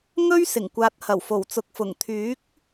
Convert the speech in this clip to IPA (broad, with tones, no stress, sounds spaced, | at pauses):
ŋ ɵ˥ ɥ s ɪ˨˩ ŋ kʷ aː˨ t̚ h ɐ˨˩ w f o˨˩ w t͡s ʊ˨ k̚ f ʊ˨˩ ŋ t̪ʰ yː˨˥ k̚